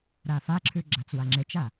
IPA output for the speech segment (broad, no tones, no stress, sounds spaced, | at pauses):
ɾ a f a ǁʰ ʉ ɡ͡ǁ a t͡s w a ŋ͡ǁ e t͡ʃ a